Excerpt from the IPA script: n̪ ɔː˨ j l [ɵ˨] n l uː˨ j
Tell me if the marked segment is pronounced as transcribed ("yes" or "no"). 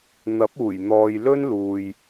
no